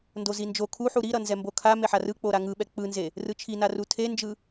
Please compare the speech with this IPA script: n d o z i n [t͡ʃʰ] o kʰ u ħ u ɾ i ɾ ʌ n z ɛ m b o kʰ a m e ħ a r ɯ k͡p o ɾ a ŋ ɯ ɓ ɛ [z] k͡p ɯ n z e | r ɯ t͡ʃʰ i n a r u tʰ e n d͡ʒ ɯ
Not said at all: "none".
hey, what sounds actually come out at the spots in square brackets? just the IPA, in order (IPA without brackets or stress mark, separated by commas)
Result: d͡ʒ, none